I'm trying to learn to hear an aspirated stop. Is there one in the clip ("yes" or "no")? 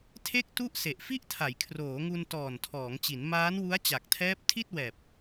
yes